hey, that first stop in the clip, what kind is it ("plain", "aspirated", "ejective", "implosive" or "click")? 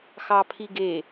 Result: aspirated